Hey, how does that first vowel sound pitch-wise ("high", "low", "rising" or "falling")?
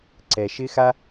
low